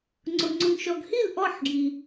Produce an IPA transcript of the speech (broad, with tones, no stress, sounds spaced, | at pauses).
ŋ͡ǀ ʊ˨ ŋ͡ǀ ʊ˨ ŋ ʃ ɔ˨ ɡ h i˥˩ l ʔ ɔ˥˩ ħ ɡ j i˨